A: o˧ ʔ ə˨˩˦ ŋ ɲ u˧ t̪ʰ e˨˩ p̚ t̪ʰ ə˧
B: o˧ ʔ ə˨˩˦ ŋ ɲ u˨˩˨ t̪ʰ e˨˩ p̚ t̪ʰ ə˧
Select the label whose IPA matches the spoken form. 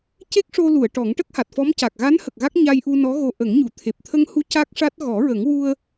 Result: B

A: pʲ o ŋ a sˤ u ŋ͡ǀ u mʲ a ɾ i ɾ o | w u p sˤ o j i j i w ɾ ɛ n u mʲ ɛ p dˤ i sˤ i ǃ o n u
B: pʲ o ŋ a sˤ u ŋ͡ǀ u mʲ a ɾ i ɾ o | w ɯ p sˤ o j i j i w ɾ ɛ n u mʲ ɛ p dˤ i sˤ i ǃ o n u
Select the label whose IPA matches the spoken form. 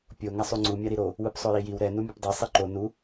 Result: B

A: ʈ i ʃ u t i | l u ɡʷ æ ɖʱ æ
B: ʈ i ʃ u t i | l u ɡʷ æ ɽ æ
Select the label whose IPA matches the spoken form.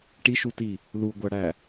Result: B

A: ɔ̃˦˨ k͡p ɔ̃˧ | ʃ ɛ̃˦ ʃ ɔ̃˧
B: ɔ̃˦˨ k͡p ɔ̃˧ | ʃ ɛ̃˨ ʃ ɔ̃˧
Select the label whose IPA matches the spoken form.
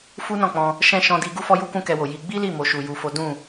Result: A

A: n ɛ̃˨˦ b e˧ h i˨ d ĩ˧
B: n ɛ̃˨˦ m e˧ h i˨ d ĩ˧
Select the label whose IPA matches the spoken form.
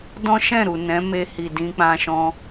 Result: B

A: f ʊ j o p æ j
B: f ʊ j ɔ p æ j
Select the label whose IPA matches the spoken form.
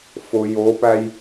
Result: A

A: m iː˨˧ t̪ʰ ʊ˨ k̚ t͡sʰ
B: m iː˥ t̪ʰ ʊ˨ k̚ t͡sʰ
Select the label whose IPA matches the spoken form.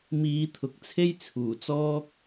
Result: A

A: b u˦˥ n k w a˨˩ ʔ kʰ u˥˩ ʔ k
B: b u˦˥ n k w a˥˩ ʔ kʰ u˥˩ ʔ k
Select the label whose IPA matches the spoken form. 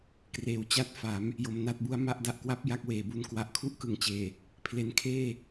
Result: A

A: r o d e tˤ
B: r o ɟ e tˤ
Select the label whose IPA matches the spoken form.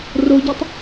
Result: B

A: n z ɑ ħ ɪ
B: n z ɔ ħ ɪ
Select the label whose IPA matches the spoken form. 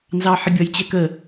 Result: A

